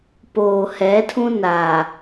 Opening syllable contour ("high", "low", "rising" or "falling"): low